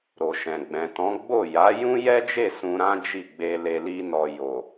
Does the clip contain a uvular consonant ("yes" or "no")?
no